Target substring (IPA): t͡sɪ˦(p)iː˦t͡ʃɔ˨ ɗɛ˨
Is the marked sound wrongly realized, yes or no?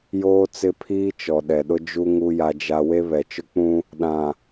yes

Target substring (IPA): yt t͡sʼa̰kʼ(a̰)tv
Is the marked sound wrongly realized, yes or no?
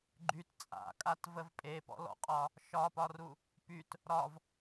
yes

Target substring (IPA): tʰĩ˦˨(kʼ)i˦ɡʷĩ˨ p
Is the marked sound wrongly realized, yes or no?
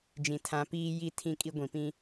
no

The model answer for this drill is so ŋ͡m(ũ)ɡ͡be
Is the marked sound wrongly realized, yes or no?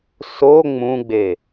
no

